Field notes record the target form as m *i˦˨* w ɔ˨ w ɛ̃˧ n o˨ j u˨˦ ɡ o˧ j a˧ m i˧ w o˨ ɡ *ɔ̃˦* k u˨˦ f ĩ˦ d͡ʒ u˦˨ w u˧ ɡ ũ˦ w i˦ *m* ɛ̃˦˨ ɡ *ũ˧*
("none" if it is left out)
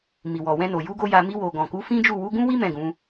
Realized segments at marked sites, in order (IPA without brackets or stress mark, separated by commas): i˨, ɔ̃˨, m, ũ˨˦